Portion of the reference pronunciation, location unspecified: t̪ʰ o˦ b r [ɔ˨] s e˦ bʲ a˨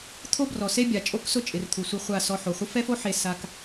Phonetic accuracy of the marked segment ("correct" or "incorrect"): correct